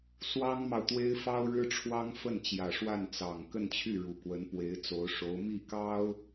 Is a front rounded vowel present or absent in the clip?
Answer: present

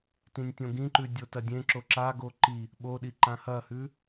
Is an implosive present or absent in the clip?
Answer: present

